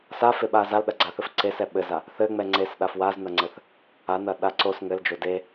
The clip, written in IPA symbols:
s a f e ɓ a z a l ɗ ɐ ɡ͡ǀ a θ ɘ f ǀ e s ɛ ɓ ɘ z a | θ ɘ ŋ͡m ɛ ŋ͡ǀ e s ɗ a f w a z n ɐ ŋ͡ǀ ɘ θ | a n ɐ ɗ a ǀ o s ŋ ɘ l d͡ʒ o d e

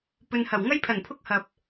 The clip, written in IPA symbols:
p ɵ˨ n h ɐ˨˩ w ŋ ɐ˥ j pʰ ɐ˨˩ n pʰ ʊ˥ k̚ h ɐ˨ p̚

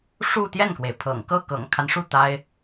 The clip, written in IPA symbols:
ʂ u˥˧ t̪ j ɛ˥˩ n k w e˩ ɪ̯ pʰ ɤ̰˨˩ ŋ k ɤ˥˩ k ɤ̰˨˩ ŋ kʰ a˦ n ʂ u˥˩ t̪ a˥ ɪ̯

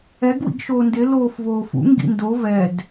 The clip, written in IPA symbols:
ɛ ɡ w ḭ ɡ ʃ oː n d ɪ l oː f v oː f ṵ ŋ ɡ ḭ n d o v ɛ d

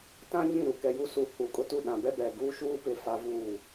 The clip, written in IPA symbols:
t ã˦ ɲ ĩ˦˨ ɾ u˨ k ɛ˨ j u˦ s u˨ h u˨ kʼ ʊ˦ t u˦˨ ɗ ã˨ b ɛ˦ b ɛ˨ ɡ uː˦ ʃ uː˦ p ɪ˨ f a˦ v uː˦˨

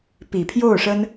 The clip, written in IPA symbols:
p i˨˩ pʰ j o˥˩ ʊ̯ ʂ ə˥ n

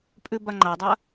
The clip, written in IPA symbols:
pʼ ʉ b a ŋ͡ǃ a dˤ ɐ

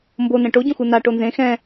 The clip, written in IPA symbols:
m b o n ɛ̃ ʈ o ɟ õ x u n a ʈ o n z ẽ x ɛ̃

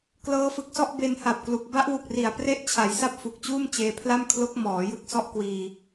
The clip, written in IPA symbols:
k l ɤː˦˥ f ɯ˨˩ k̚ s ɔ˥˩ ʔ b e˧ n h a˨˩ p̚ k l u˨˩ k̚ b a˦˥ ʔ w u˨˩ k̚ r i˨˩ a̯ p r e˥˩ ʔ t͡ɕʰ a˩˦ j s a˥˩ p̚ f u˨˩ k̚ t͡ɕ uː˥˩ m t͡ɕ eː˧ pʰ l a˥˩ m kʰ l o˦˥ k̚ m ɔː˩˦ j ɯ˥˩ k̚ s ɔ˥˩ ʔ k w iː˧

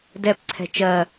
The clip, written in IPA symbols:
d ɛ p ǀʰ ɛ̤ t͡ʃ ɜ

